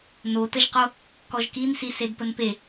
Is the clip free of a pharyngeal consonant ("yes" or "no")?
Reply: yes